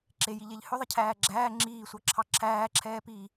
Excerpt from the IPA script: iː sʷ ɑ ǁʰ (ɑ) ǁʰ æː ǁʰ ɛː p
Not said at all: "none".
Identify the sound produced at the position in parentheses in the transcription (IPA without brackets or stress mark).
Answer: ɑ